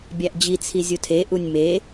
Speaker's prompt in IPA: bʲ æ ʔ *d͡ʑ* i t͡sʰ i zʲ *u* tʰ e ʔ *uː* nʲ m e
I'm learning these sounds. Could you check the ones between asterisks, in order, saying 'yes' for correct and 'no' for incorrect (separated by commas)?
yes, yes, no